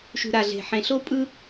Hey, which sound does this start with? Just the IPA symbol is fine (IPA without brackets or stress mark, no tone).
ʃ